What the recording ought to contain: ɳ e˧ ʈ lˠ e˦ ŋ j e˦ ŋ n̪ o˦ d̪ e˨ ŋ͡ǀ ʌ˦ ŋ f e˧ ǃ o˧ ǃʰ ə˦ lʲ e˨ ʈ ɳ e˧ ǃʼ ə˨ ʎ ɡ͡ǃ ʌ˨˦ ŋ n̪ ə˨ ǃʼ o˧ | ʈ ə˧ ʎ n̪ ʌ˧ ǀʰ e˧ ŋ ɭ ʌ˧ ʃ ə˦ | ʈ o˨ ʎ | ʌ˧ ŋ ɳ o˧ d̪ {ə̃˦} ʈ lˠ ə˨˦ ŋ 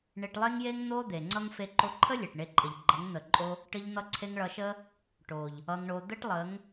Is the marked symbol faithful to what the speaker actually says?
no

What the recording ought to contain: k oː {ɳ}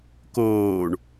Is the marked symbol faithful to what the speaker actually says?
yes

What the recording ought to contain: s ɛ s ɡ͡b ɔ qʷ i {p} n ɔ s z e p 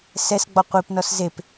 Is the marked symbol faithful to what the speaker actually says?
yes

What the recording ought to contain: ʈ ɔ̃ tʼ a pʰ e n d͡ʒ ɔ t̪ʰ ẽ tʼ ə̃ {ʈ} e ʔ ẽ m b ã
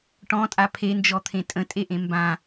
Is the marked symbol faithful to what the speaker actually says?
no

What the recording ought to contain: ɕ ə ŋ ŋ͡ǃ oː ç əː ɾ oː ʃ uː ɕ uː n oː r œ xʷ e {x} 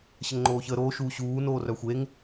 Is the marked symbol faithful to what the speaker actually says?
no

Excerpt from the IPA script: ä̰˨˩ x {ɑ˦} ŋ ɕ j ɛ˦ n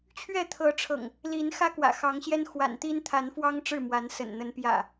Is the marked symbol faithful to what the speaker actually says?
no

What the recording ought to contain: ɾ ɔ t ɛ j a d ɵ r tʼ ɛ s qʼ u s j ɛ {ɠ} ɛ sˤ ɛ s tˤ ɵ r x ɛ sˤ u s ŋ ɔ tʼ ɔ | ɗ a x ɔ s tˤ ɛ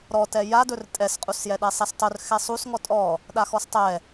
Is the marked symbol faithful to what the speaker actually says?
no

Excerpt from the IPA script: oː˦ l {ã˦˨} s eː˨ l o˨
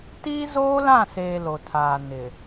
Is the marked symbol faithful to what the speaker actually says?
yes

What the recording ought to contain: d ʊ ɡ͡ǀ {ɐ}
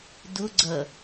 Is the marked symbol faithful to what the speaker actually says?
yes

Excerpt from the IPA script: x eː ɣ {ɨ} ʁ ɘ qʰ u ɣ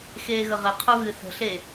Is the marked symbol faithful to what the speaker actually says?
no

